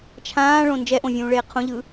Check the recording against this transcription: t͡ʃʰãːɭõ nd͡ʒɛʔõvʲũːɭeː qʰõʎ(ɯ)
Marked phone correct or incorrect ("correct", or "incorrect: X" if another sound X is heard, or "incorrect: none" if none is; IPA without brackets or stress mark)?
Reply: correct